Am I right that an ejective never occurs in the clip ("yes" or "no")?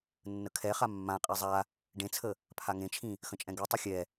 no